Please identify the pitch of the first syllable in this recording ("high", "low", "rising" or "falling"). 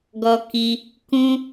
high